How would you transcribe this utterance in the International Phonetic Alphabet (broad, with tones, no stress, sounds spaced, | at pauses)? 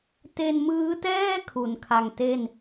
t e˧ n m ɯː˦˥ t ɛː˥˩ kʰ u˩˦ n kʰ a˧ ŋ t e˥˩ n